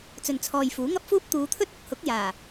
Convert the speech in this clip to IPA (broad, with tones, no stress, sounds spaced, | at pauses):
t͡s ɵ˨ n t͡sʰ ɔː˨ j f uː˨˥ ŋ ɐ˥ p̚ f uː˥ p̚ t̪ uː˨˧ t̪ʰ ɵ˥ t̚ ʊ˨ k̚ h ʊ˨˥ k̚ j aː˨˩